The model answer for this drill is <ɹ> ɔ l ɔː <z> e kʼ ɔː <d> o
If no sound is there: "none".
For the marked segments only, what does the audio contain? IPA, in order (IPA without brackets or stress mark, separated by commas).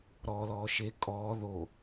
ɾ, ʃ, ð